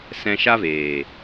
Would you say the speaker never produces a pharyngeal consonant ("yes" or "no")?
yes